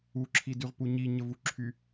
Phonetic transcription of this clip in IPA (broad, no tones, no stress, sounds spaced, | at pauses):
u ǁʰ i d y ʁ p u ɲ i ɲ ə v u ǁʰ y